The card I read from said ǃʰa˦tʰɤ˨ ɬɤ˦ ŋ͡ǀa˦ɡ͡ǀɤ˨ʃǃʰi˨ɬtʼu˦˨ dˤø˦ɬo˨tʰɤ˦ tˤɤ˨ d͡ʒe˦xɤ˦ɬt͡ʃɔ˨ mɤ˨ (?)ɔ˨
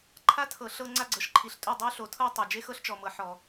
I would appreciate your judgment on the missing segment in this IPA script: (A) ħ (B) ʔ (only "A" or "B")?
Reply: A